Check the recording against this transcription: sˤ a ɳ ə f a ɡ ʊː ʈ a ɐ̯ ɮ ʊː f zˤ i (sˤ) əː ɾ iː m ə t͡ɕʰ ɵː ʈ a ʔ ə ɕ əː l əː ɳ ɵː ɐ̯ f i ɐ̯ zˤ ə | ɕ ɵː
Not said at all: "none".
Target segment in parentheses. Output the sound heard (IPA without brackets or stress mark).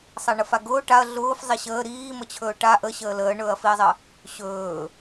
ɕ